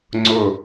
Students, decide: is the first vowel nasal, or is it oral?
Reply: oral